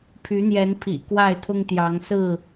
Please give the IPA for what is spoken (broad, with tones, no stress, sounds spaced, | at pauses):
pʰ y˨˦ n̪ j ɛ˨˦ n pʰ ḭ˨˩ k w a˥˨ ɪ̯ t̪ʰ ʊ˦ ŋ t̪ j ɑ˨˦ ŋ s ɹ̩˥˨